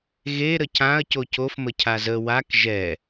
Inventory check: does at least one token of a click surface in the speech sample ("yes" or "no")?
no